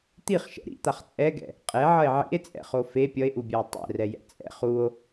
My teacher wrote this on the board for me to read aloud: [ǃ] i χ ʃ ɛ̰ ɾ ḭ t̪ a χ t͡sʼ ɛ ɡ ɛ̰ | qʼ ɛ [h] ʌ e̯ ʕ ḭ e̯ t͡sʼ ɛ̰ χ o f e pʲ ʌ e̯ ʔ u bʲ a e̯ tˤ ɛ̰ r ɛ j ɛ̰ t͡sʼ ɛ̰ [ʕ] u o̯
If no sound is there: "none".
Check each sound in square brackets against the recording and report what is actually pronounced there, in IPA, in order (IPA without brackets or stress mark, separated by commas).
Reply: t̪, ʕ, χ